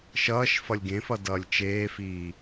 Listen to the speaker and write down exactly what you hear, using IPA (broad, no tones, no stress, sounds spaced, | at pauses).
ʃ ʌː ʃ f ʌ lʲ ɡ ẽ f ʌ d ʌː lʲ t͡ʃ eː f iː